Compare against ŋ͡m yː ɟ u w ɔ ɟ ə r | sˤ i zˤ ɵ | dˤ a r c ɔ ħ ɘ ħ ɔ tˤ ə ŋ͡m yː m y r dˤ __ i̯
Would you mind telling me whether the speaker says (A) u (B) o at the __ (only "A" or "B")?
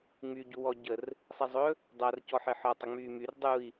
A